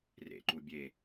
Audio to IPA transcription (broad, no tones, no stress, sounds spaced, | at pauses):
r ḛ ǃ u bʲ e